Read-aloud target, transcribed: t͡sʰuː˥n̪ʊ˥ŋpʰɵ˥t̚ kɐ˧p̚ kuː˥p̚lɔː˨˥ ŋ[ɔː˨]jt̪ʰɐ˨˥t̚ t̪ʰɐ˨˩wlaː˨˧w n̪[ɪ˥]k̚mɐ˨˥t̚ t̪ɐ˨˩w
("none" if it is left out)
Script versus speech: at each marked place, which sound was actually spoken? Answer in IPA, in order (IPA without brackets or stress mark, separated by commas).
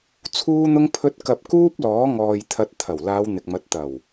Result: ɔː˨, ɪ˨